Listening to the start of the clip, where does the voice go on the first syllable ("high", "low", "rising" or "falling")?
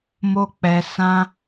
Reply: high